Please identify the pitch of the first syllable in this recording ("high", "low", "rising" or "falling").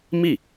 falling